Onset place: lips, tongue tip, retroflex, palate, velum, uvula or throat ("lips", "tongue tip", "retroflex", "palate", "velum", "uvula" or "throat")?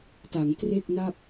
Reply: tongue tip